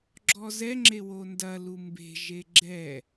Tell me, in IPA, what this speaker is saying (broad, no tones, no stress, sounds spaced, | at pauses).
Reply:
ɡ͡ǁ ɔ z ɛ ŋ͡ǁ e w o n d ɐ l u m b e̤ ʒ e ɡ͡ǁ ɛ